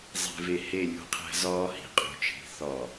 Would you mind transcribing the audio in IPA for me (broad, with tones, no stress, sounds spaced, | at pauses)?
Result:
zˤ e̤˨ v e˨ h e˦˨ lʲ ṳ˦˨ qʰ æ̤˦ z ɒː˦ h i̤˨ qʼ ṳ˨ t͡ʃʰ i̤˨ θ ɒ˨